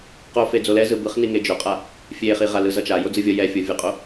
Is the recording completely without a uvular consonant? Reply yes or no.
no